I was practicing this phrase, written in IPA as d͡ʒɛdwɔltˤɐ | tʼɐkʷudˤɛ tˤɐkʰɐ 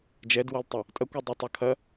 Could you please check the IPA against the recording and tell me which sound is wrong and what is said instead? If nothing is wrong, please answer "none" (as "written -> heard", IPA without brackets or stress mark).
none